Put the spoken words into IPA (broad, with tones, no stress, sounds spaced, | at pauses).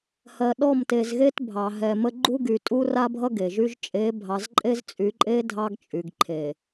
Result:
h ɜ˨ ɗ ɔ˦˨ m t e˨ z ɣ e˦ t bʱ ɑ˨ ɦ ɛ˨ m ə˦ ɡ͡ǃ u˦ ɡ y˨ tʼ u˦ r a˦ bʱ ʌ˦ ɡ e˨ ʒ y˦ ʒ t͡ʃʼ e˨˦ bʱ ɑ˨ z ǃʼ e˦ z t͡sʼ y˨˦ ǃʼ e˦ dʱ ɑ˦ ɡ t͡ʃʼ y˨ ɡ ǃʰ e˨